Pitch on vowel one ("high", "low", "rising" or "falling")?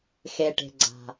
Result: low